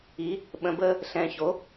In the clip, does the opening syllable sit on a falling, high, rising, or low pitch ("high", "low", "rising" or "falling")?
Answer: rising